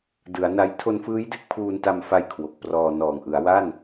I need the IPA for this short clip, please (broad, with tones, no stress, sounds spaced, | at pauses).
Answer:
d ɯ˩˦ a̯ n a˧ j tʰ o˧ n f ɯː˦˥ j d e˥˩ k̚ pʰ uː˧ n t a˧ m f a˧ j kʰ w o˨˩ k̚ p r ɔː˧ n ɔː˨˩ ŋ ʔ ɯ˩˦ a̯ w a˥˩ n